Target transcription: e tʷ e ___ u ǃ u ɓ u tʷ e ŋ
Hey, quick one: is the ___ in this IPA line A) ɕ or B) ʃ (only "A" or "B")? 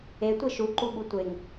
B